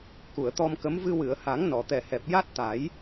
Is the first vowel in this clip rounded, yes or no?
yes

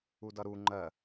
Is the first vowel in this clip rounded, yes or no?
yes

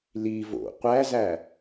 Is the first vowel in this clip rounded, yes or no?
no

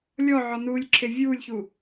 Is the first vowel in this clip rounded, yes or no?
yes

